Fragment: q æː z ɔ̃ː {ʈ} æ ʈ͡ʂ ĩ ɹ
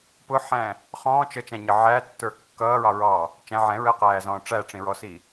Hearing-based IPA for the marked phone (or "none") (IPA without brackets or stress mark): ʈ͡ʂ